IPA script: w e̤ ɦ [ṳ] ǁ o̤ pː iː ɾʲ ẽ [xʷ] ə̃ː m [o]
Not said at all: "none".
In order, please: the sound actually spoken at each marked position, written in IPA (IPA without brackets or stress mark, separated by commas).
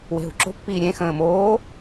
ṳ, x, oː